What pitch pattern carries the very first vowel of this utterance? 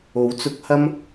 rising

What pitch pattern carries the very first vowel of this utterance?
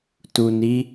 low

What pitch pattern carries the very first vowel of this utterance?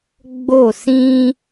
falling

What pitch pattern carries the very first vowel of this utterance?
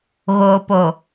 low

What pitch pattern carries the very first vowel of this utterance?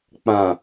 low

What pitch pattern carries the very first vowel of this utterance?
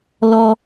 high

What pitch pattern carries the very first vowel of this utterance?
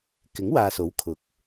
rising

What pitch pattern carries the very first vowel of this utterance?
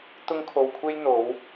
high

